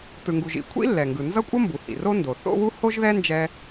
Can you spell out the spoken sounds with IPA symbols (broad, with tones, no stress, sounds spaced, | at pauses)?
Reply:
t ɯ˩ ŋ ɡ u˩ ʒ ḭ˩ kʷʰ ḭ˥ lː ɛ˩ ŋ ɡ ɯ˩ n z ʌ˥ kʷʼ ʌ˥ m b u˩ h ḭ˩ r o˥ n d o˩ θ o̰˥ w u˥ h o˥ ʒ ð ɛ˥ n d͡ʒ ɛ˥